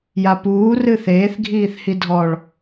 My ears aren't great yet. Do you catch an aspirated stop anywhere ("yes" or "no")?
no